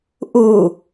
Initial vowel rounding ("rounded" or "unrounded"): rounded